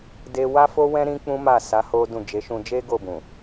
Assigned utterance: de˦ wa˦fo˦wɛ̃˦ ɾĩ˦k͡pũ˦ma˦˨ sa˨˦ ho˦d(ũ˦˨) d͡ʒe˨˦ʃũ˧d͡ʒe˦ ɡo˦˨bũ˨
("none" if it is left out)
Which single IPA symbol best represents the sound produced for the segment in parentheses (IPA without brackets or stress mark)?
ũ˦˨